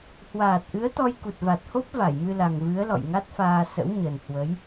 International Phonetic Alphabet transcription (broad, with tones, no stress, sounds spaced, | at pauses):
h w aː˨˩ t̚ ʔ ɨ˨˦ ə̯ t̪ ɔ˧ j k u˨˩ t̚ v a˨˩ t̚ h o˦˥ p̚ v a˧˩ j m ɨ˧ l a˨˩ ŋ v ɨ˨˦ ə̯ l ɔ̰˧˨ j ŋ a˦˥ t̚ f aː˧ s ə̰˧˥ w ɲ ə˨˩ n h w ə˨˦ j